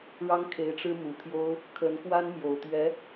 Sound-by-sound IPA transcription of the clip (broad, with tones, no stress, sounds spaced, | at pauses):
ɻ ɑ˥ ŋ kʰ e˧˥ ɪ̯ ʈ͡ʂ ɻ̩˥ m u˨˩ t̪ʰ j o˥ ʊ̯ | kʰ ə˧˥ n k w a˥ n m j o˨˩ ʊ̯ t̪ ɥ ɛ˧˥